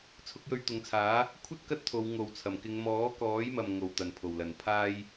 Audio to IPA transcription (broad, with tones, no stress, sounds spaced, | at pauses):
t͡sʰ ʊ˨˥ k̚ j ɵ˧ ɥ t̪ ʊ˨˧ ŋ t͡sʰ aː˨˥ | kʷʰ ɐ˥ t̚ k ɐ˥ t̚ t̪ʰ o˨˧ w ŋ o˨ w t͡sʰ ɐ˨˩ m k ɪ˨˧ ŋ m ɔː˨˥ k ɔː˨˥ j m ɐ˨ m ŋ o˨ w t̪ ɐ˨˩ n pʰ o˨˩ w l ɐ˨˩ n pʰ aː˥ j